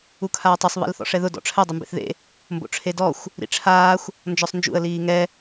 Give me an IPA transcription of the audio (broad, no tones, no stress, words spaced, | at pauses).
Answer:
ukʰaːtˤɪsˤ βḭlθɔ̰ʂɛðʊ dɔ̰ʈ͡ʂʰɛ dˤɪmbḛθðḛ | mbo̰ʈ͡ʂʰedɔxʷ | ɾḭʈ͡ʂʰaːxʷ | nd͡ʒɔsˤnd͡ʒṵə̯ liːŋɛ